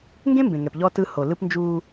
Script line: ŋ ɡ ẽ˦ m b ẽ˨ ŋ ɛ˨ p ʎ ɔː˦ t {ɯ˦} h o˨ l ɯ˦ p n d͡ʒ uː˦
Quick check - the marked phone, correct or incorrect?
correct